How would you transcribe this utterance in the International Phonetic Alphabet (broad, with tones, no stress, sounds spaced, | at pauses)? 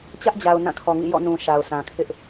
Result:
t͡ɕ ä˦ ʔ d͡ʑ a˨ ʊ̯ n ã˦˨ kʰ ɔ˨ ŋ ḭ˦˨ j ɔ̰˦˨ n ũ˨ ʃ a˨ ʊ̯ sʰ ã˨ kʰ ɪ˦ ʔ